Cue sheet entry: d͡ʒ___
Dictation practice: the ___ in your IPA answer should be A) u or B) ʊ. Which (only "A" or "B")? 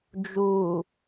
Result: A